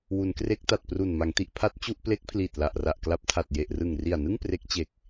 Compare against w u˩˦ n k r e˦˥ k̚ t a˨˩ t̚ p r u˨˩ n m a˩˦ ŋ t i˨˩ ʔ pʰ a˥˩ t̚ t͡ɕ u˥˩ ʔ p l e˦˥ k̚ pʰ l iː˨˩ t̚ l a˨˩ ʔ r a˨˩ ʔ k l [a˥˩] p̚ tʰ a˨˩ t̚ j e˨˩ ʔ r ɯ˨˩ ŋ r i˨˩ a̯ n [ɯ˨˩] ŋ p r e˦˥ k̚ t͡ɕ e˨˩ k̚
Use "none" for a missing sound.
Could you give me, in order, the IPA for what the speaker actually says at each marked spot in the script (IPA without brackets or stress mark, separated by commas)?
a˦˥, ɯ˥˩